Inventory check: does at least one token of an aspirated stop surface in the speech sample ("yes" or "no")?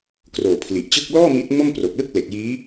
yes